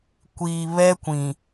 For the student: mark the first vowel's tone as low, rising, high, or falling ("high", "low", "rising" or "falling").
low